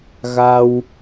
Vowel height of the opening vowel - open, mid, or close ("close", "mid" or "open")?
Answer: open